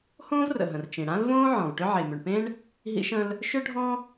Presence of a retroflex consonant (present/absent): present